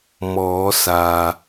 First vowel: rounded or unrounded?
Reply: rounded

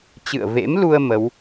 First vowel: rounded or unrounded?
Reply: unrounded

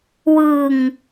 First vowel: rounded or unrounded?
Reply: unrounded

